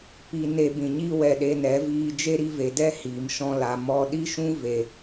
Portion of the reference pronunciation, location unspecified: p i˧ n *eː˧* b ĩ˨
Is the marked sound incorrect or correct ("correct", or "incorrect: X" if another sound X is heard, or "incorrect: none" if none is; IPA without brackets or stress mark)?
incorrect: e˧